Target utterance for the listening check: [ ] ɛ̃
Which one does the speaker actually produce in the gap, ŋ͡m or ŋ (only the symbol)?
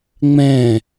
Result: ŋ͡m